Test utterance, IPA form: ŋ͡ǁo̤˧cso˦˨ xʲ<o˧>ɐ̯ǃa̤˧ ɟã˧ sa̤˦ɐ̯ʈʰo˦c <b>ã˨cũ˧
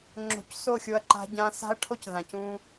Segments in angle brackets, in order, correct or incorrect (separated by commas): correct, incorrect